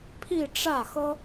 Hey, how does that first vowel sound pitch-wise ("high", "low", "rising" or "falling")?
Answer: falling